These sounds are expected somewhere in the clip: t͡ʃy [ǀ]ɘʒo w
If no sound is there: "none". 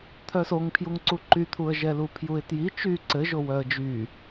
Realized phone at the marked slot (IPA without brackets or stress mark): ǀ